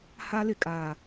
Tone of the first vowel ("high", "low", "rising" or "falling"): high